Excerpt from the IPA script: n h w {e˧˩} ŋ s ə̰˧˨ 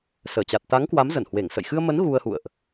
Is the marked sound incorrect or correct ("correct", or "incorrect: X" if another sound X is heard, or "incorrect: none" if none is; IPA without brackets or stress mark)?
correct